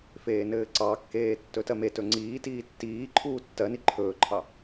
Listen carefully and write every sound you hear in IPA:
f eː n ɘː ǀ ɑ kː eː tː ɵ t ɜ m e t ɵ ŋ͡ǀ iː t iː tː iː ǃʰ uː tː ɜ n i ǃʰ ɵː ǃʰ ɑ

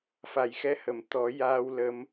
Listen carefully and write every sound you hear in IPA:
f a˨˩ j x ɛ˧˥ h ə˨˩˨ m t̪ ɔ˨˩˦ j aː˧ w l ə˧˥ m

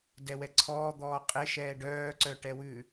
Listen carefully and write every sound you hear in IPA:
d ɛ w ɛ ǀʰ ɔː d̪ ɔː qʼ e ʃ ɛː ɖ œː ǀ œ ʈ ɛ w ʉ

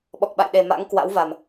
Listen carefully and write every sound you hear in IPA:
ɓ ɔ˨˩ k̚ ɓ a̰˧˨ j ɗ e˨˩ m a̰˧˥ ŋ k w a̰˧˥ w v a˨˩ m

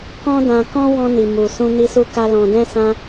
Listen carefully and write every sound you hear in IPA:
k ɔ̃˦ d ã˧ k ɔ̃˦ w ɔ̃˧ n i˨ m u˨ s ũ˧ n i˧ s u˧ k a˧ l ɔ̃˨ d ɛ̃˧ s ã˧

